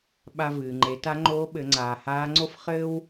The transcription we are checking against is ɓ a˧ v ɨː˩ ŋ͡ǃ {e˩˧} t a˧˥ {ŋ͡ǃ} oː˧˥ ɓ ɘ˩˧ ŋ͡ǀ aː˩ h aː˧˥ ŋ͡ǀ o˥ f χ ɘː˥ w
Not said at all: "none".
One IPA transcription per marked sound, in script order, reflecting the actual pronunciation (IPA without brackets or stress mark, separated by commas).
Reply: e˩˧, ŋ͡ǃ